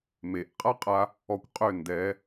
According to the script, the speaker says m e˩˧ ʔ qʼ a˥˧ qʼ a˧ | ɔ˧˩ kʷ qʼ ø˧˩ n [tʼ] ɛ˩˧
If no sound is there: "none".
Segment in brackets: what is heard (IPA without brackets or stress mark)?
d